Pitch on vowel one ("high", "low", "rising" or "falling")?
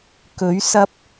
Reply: rising